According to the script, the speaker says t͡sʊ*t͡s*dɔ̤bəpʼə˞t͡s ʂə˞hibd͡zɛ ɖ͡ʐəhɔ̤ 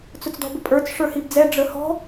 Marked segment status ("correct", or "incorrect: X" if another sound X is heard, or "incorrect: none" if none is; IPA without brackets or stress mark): correct